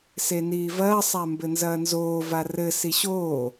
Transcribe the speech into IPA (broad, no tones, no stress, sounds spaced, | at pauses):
s e n iː v ɐː sˤ a m b ɘ n z ɐː n z oː v a r ɘ s i ɕ oː